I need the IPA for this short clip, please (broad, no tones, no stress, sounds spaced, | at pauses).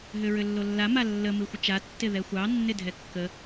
ɦ ʏ ɹ ʏ lː o lː a m a lː ə m ɨ xʷ ə t͡ʃ a tː ɪ ð ɛ xʷ ɑ nː ɪ dʱ ɛ kː ə